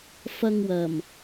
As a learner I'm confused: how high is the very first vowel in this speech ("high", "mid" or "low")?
low